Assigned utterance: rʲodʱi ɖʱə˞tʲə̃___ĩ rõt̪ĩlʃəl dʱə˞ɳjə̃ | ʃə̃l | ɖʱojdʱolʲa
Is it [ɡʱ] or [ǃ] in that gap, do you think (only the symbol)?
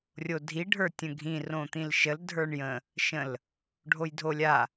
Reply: ɡʱ